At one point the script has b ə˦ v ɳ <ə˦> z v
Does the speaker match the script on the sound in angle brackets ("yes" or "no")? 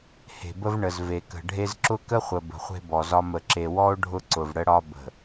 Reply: no